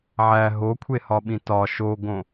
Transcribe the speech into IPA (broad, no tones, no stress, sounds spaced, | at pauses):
ʕ æ ɦ o kʷʰ e h ɒ ɓ ĩ t ɒ ʃ o ɡ õ